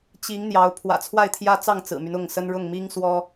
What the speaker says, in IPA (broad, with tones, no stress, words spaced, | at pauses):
t͡ɕi˨˦ŋ n̪jɑ˨˦ʊ̯ pʰwä̰˨˩ t͡sʰwa˥˨ɪ̯t̪ʰjä˦t͡sɑ˥˨ŋ t͡sɹ̩˨˩my˦nʊ˥˨ŋsə˦n ɻʊ˥˨ŋmi˦ŋ swɔ˦